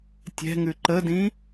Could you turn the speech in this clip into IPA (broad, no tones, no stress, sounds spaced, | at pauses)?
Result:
tʲ ɛ̤ ŋ ʉ ǃ ə d ĩ